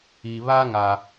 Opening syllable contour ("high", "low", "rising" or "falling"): low